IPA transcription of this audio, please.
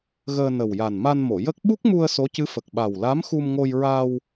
ɣəː˧nə˨˩wja˨˩n ma˧nmo˨˩˨jə˦˥k̚ ɓu˦˥k̚mu˧ə̯ so˧˥cɨ˧˥fə˨˩k̚ɓa˨˩w la˧˥m xu˧mŋo˧j ɹa˧w

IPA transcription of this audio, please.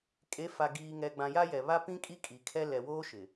kʼe˨˦fa˨ ɡiː˨ŋɛ˨ɡ͡bã˨ ja˦jɛ˨ βa˦pĩ˦ kʼi˦kʼi˨kʰɛ˦ lɛ˨woː˦ ʃɪ˨

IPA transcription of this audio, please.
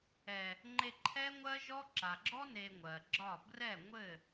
ɛ˨ | ŋ͡ǃe˧ǃʰɛ˦ŋʷɜ˦ʒɔ˦ ǁa˨ɡ͡ǁɔ˦ ne˧ŋʷɜ˨ɡ͡ǁɒ˦˨ brɛ˦˨ŋʷɘ˦˨

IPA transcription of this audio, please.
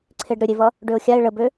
ǀʰeɖɾʏɾʲevʌ | ɖøʊ̯xʲaɪ̯ ɭəbø

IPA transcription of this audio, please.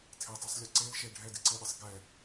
tʰetˤɯsˤlʲɛ ǀel ʃe ɖʱɛdiǀeɗisˤ ɡɛ

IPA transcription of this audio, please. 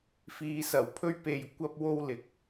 fiː˨sɐ˨˩wpʰɵ˧ɥpe˨j kʷɐ˧p̚wo˧w lɪ˨˥k̚

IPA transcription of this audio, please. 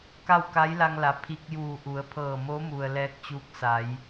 ka˥˨wka˧˥jla˧ŋla˩ pʰi˧k̚juː˧˩ʔu˩˧ə̯pʰɤː˧˩ mo˧˥mu˩ə̯ lɛː˧k̚t͡ɕuː˧k̚sa˩˧j

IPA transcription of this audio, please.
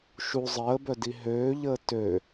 ʃu zˤəːbœ diɦøːʎəː tø

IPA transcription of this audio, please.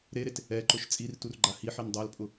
ɾeɾet | ɛǃʊʃ t͡sʼirturɡ͡ǃa hiħin dˤalpʼʊ

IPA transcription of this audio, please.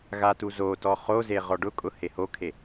ɣatuzotɔ χoze ʁɔɖʊkʼʊ hehokʰe

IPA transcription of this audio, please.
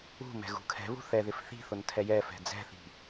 ṳ mɛ̤ɣṳkʰɛ̤βṳ θɛðɪf θi̤θʊn tʰɛjɛfɛ̤ d͡zɛ̤θi̤

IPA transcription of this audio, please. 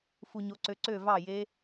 fu˨ɲo˨˦ǀø˨˦ ǀø˥˩vɑ˥˩je˦˥

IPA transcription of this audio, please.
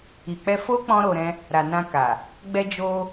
i˨k͡pɛ˧ fo˦ k͡pɔ̃˦ɾo˧ɾɛ̃˦ | ɾa˨nã˧ka˨ | ɡ͡bɛ˧d͡ʒo˧

